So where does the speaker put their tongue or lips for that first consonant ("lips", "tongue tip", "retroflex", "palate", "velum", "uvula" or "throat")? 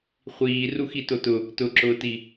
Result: uvula